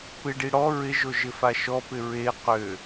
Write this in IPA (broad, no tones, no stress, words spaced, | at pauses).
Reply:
pɪɖi ɽɔ ɹɪʒo ʒɪfaʃɔpɪ ɹe qø